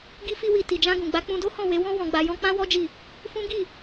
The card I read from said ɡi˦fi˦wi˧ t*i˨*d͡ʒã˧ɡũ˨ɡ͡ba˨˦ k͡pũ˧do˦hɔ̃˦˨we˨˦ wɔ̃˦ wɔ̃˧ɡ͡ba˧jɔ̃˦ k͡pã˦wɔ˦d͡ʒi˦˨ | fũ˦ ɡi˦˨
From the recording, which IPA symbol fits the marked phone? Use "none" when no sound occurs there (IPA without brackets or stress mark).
i˨